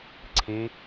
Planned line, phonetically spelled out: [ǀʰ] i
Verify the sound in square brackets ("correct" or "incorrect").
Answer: correct